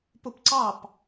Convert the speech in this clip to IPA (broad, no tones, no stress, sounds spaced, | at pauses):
p u p ǀ ɑ p